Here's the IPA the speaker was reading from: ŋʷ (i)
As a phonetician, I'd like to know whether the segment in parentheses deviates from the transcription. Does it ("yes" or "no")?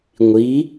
no